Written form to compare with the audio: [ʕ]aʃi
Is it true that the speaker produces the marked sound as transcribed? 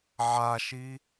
yes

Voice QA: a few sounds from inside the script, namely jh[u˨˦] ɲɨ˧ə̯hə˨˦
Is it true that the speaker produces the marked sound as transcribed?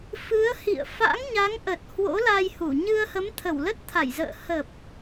no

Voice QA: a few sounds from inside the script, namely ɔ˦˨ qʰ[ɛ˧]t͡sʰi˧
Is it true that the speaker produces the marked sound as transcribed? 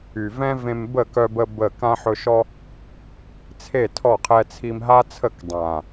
yes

